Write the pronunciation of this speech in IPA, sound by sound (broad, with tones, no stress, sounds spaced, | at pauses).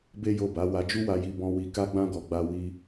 b e˦ j o˦˨ b a˨˦ w a˧ d͡ʒ u˦ w a˧ j i˧ b ɔ̃˧ w i˧ k a˦ ɡ͡b ã˦ ɡ ɔ˧ ɡ͡b a˦ w i˦